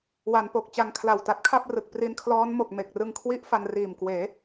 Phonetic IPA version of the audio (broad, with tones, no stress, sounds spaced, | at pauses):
w a˩˦ n p o˨˩ k̚ t͡ɕ a˧ ŋ kʰ l a˨˩ w t a˦˥ t̚ kʰ a˥˩ p̚ r ɯ˨˩ k̚ p r i˧ n kʰ l ɔː˦˥ n m o˨˩ k̚ m e˨˩ k̚ r ɯ˧ ŋ kʰ w i˦˥ ʔ f a˧ n r iː˨˩ m k w eː˩˦